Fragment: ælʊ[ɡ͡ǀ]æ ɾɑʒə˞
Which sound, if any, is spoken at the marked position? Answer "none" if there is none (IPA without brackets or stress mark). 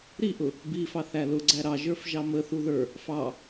ɡ͡ǀ